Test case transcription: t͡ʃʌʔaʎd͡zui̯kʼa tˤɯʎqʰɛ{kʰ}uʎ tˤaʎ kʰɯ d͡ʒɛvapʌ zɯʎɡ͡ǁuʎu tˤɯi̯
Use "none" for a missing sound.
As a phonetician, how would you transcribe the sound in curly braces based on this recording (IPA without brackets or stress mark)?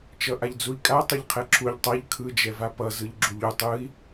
ǁʰ